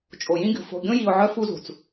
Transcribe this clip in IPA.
t͡ʃʼ o˨ j ĩ˦ ɡʲ ṳ˨ f o̤˨ ɡʲ õ˦ j i˨ ʊ̯ ʕ œ˦ f u˦ z ṳ˨ t͡s

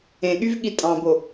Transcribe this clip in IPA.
ẽ ɠ y v ɠ i tʼ ɑ̃ b o

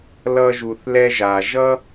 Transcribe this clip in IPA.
l ʌ˧ ʒ u˩ θ l ɛ˧ ʒ a˩ ʒ ʌ˥

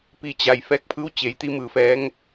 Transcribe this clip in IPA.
p i˧˩ t͡ɕ a˩ j f ɛː˧ k̚ pʰ ɯː˧˥ w t͡ɕ e˩˧ j t̪ i˧˥ m ɯː˧˩ f ɛː˧˥ ŋ

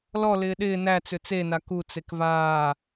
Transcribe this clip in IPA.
l ɔ l ɪː ɗ ɪː n æ t͡s ʏ t͡s e n a k u t͡s e k v aː

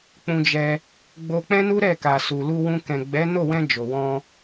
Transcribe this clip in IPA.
k͡p ũ˧ d͡ʒ ɛ˧ | ɡ͡b o˧ k͡p ɛ̃˦ n u˦ ɾ ɛ˦˨ k a˨ s u˨ l u˧ w ũ˧ k ɛ̃˨ ɡ͡b ɛ˨˦ n o˦˨ w ɛ̃˧ d͡ʒ o˨ w ɔ̃˧

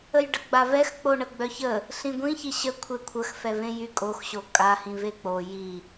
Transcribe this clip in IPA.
ə j ɖ ə ɡ͡b a v ɛ x k͡p o ɳ ə ɡ͡b œ ç ə | ɬ ĩ ɡʷ ĩ ç i ɕ ə kʷʰ e kʷʰ ə x f ɛ v ẽ j y kʼ o x ɕ o kʼ a h ĩ v e k͡p o j i

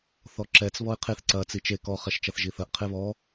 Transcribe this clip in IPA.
θ ɔ ǁ ɛ t͡s β ɔ ɪ̯ qʰ e θ ǀ ɐ t͡s i t͡ʃ e k ɔ χ ɛ ʃ t͡ʃ ɐ θ ʒ i θ ɐ ʔ qʰ e β ɔ

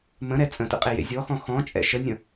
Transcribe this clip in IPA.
m ə̃ ɾ ɛ t͡sʼ ə̃ t ə̰ qʼ e j ḛ zʲ ɔ x ɔ̃ x ɔ̃ t͡ʃʼ ɛ̰ ʃ ə nʲ ə̃

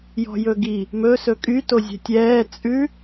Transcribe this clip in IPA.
j ɔ̤ j ɵ ɡ i | m ɵ s ɵ kʼ y t o zʲ ɛ̤ tʲ ɛː t͡sʼ ʉ

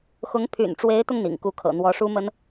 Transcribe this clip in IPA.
x ʊ˧˥ ŋ pʰ y̰˨˩ n ʈ͡ʂ w e˧˥ ɪ̯ t̪ ʊ˧ ŋ n̪ ḭ˨˩ ŋ k u˥ kʰ ɤ̰˨˩ n̪ w ɔ˧˥ ʂ u˥ m ə˥ n

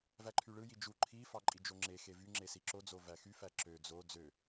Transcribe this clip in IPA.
v æ ǃʰ y ɭ ɯ j i d͡ʒ u ǃʰ i f ɑ ǃʼ i d͡ʒ o ŋ͡ǁ e x e v y ŋ͡ǁ e s i ǁ o d͡z o v æ x y f æ ǁ ø d͡z o d͡z ø

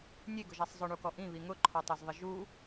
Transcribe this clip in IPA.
nʲ e ɡ ʊ ʒ a sˤ zˤ ʊ ɳ u k ɔ ʔ ĩ β i ŋ ʊ ǃʰ ɔ tˤ o z ðˤ ɪ ʒ u

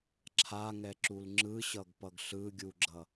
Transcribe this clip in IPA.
ǁʰ a ŋ ɛ ǁ u l ŋ͡ǁ ɯ ɕ ʌ ɡ p ʌ ɡ ɬ ɯ ɡʲ u ɡ͡ǁ ʌ

